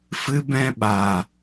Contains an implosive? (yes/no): yes